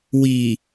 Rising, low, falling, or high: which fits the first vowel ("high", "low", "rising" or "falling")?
low